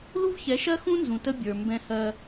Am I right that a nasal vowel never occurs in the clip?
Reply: no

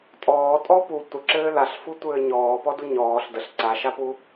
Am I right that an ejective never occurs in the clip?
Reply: no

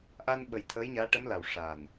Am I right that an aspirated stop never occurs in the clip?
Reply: no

